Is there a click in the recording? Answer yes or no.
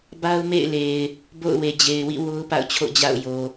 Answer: no